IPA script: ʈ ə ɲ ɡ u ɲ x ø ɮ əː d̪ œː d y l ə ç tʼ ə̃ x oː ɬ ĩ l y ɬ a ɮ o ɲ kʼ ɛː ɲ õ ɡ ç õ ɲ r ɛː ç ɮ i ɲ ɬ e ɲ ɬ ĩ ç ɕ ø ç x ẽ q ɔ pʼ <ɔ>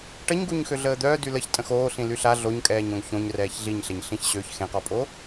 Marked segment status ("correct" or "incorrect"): incorrect